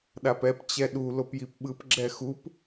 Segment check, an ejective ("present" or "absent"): absent